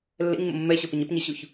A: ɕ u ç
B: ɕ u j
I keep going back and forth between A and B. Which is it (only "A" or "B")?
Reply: A